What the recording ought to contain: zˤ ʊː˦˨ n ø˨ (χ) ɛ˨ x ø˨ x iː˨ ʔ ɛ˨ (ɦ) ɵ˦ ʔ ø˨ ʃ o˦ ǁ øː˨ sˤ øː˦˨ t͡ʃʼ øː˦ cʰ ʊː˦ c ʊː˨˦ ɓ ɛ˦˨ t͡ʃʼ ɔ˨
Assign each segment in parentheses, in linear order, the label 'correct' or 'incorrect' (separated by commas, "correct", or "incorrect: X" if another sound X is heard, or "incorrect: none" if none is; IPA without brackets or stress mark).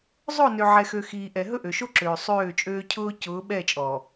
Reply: incorrect: ʕ, correct